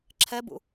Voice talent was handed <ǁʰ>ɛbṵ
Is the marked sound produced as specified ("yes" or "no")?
yes